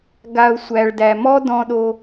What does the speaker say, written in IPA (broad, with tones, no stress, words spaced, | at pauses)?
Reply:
ɡa˨ʊ̯sʷæ˨ɭdæ˨mɔ˦ dɔ̃˦ɗo˦